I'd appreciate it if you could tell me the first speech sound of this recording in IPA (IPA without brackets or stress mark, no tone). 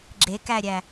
ɡ͡ǁ